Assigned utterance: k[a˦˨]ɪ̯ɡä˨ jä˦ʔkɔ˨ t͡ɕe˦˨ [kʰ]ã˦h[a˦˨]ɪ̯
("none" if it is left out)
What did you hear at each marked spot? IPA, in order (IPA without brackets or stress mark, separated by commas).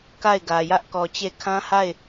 a˦˨, kʰ, a˦˨